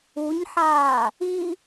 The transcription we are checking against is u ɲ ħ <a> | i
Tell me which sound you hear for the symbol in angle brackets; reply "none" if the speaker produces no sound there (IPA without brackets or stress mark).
aː